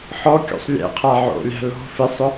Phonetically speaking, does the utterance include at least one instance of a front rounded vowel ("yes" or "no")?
no